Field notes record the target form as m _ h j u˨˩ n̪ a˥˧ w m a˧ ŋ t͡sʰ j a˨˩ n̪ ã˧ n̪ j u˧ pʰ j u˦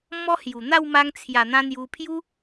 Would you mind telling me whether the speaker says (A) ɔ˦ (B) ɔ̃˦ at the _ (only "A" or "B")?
A